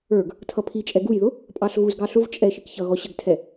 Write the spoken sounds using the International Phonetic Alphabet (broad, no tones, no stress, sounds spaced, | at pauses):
ə˞ ɡ | tʰ ʌ pʰ i t͡ʃʼ ɛ ɡ u j ð ʊ | pʼ ɑ ɬ ɣ u z ɡ ɑ ɬ ʊ v t͡ʃʼ ɛ ʃ i k ç ʌ ɣ ɔ ɕ ə ɡ tʰ ɛ